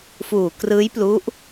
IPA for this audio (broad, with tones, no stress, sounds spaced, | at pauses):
f uː˨˩ k r ɯː˦˥ j p l u˦˥ ʔ